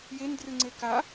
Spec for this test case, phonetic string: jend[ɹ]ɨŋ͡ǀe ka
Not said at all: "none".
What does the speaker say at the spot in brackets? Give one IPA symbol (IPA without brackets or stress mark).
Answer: r